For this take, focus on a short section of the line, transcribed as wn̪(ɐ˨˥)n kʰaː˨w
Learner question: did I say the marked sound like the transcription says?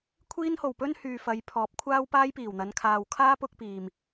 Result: no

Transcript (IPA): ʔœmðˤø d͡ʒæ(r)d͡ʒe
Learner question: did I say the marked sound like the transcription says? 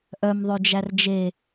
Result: yes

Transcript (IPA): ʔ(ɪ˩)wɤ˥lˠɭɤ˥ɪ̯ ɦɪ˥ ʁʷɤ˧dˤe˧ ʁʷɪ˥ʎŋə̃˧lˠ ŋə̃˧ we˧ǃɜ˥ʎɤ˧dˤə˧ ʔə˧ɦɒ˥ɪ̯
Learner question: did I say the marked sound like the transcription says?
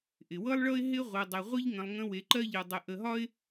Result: yes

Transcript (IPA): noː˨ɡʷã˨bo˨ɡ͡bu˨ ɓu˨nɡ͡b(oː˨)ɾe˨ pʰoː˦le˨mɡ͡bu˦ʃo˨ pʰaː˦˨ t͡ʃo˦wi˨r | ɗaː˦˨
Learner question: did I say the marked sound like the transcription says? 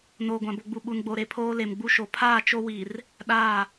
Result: no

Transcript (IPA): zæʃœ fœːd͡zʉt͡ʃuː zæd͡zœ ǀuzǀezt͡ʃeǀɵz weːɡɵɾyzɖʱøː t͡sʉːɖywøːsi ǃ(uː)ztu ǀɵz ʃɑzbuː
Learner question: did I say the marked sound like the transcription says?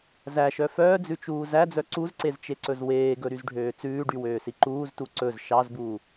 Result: yes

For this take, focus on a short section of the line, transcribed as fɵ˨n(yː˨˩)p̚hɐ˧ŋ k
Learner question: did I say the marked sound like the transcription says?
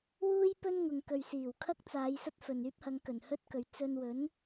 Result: no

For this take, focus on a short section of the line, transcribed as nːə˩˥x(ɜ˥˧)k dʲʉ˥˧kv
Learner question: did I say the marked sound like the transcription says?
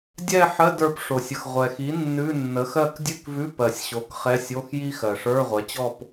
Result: yes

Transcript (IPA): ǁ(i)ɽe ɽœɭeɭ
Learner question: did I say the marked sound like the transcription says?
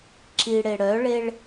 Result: yes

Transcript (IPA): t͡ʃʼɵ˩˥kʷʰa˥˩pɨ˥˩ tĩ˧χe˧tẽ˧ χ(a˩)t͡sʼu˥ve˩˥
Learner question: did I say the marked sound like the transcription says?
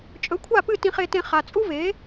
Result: yes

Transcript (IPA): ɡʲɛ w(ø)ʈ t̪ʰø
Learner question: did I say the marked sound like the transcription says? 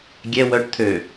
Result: no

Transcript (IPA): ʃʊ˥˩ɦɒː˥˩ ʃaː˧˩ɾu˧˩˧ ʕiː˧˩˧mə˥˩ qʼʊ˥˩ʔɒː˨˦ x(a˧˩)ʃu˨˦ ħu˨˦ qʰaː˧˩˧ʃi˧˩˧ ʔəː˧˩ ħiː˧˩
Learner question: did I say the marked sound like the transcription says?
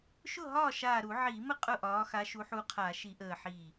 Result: no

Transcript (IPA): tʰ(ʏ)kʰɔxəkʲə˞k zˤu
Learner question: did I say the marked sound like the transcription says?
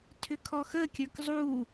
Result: yes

